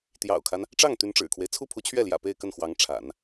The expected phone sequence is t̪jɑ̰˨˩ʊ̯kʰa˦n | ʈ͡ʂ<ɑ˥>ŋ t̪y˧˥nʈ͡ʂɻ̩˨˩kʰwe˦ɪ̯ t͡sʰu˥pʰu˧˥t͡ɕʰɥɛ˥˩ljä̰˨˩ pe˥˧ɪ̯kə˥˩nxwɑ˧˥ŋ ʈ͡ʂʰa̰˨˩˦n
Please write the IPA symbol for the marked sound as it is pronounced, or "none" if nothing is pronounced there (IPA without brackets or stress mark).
ɑ˥˩